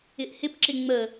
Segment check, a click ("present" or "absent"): present